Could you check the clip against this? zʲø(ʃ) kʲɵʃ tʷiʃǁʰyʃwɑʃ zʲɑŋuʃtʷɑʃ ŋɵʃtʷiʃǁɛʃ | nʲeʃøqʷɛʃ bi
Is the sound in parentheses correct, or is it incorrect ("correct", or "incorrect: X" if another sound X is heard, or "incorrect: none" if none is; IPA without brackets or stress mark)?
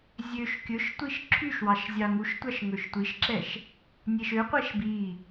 correct